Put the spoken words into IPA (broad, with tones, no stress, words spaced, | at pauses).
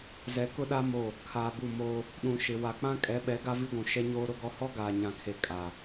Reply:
zɛ˨ kʊ˦ɗa˦ mo˦˨ | kʰaː˨bu˦˨ moː˦ | ɗũ˨ʃɪ˨ wa˨k͡pã˦ kʼɛ˨˦ɓɛ˨˦ ɡa˦vi˦ɡʷũ˨ ʃɛ˦ɲoː˦ɾʊ˦ɡɔ˦ hɔ˦ɡaː˨ɲã˨kʰe˨ kʼa˨